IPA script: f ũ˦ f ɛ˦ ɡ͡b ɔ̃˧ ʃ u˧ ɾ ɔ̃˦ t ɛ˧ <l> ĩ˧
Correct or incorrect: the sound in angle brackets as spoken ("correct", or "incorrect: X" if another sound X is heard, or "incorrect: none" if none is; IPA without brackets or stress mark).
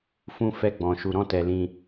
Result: correct